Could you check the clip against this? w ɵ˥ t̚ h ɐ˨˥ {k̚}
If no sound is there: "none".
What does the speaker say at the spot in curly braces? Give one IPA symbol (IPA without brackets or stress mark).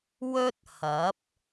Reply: p̚